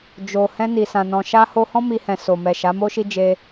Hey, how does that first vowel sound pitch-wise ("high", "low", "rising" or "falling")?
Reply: low